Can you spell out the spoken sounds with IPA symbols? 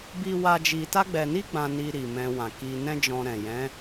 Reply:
bi˦wa˦ d͡ʒi˧ta˦ɡ͡bɛ˧ni˦ ɡ͡bã˦ ni˧ ɾi˨mɛ̃˧wã˨ki˧ nɛ̃˦d͡ʒɔ̃˧ɾɛ̃˨ jɛ̃˨˦

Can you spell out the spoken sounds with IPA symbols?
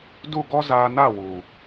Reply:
du˦˨ɡɔ˦ zaː˧na˦˨wu˨

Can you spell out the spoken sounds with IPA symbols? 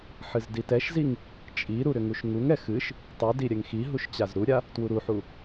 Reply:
ħɨzditɛʃziŋ | t͡ʃʼiɾu ɾʏŋuʃŋuŋɛ xɨʃ | tˤudi ɾʲɛŋxiɦuʃ t͡ɕazɾuɾʲa | twuɾuħu

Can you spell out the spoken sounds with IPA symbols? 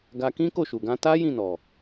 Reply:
ɡa˧ kĩ˦ko˦˨ʃu˨ɡã˧ ta˦ jĩ˦˨nɔ˨

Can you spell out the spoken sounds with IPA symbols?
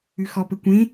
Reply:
ʉxɔ pɘkʷẽ

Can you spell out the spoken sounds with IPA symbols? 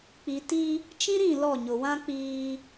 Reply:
k͡pi˨ ti˦ | t͡ʃĩ˦ɾĩ˦˨ lɔ˦˨ɲʊ˨wã˦ k͡piː˦

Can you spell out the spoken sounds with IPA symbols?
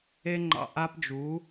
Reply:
e˦ŋ͡ǃɑ̰˧ ʔa˦pd͡ʒu˨˦

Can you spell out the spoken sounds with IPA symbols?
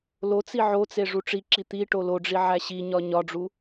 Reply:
lot͡si ʕot͡se ʐuʈ͡ʂiǁi t̪i ʈoloɖ͡ʐi ʕæɕiɲɒ ɲɒɖ͡ʐu

